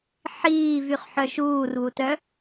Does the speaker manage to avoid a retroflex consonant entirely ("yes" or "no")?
yes